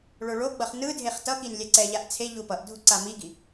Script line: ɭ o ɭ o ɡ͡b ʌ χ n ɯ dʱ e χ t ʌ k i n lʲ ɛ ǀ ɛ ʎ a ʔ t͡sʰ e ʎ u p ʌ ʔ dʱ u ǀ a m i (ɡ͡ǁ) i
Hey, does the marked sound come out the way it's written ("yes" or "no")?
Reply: no